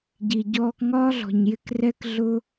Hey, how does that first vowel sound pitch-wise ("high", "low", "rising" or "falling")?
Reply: low